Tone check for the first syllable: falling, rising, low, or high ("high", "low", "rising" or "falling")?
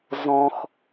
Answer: low